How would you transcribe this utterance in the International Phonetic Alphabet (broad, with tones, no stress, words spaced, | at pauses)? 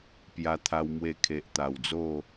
pja˧t̪ʰa˧w mwe˧kʰe˨ʔt̪a˨˩wd͡zo˥˧